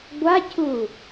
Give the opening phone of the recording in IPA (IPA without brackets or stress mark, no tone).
ɡʷ